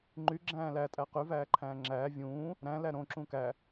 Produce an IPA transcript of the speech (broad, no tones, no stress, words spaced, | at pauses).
ŋ͡ǃy ɡ͡ǁæ̃ːlæ tʼæqy væːǃʰæ̃ːŋ͡ǁæː vʲũː | ɾæ̃ læɾõ ǁũkæ